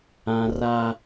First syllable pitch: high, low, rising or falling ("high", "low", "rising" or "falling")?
high